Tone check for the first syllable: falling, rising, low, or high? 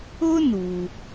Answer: high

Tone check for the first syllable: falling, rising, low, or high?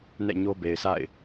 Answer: falling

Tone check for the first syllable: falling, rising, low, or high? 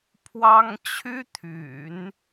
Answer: high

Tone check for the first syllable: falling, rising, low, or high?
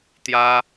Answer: high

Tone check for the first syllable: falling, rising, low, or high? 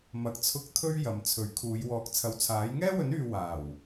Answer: low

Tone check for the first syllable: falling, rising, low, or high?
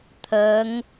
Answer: rising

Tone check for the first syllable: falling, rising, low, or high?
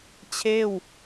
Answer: falling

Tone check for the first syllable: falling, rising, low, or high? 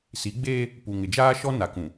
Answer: rising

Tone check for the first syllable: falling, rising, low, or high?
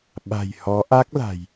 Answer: low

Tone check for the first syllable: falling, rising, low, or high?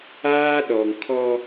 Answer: high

